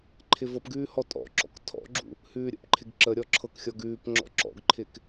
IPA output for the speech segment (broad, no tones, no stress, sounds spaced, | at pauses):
ǃʰ ɪ v ɤ p ɡ ʉː h ɔ tʼ ɔ̰ ǁ ɔ̰ k tʰ ɔ̰ ɡ͡ǁ ṵ | h ʉː ɾʲ ə̰ p ǃʰ ɪ ɡ ǁ ə ɾʲ ɔ ǁʰ ɤ k xʲ ɔ ɡ ʉː p ŋ͡ǁ ɔ̰ ǁ ɔ̰ ɡ ǃʰ ɪ k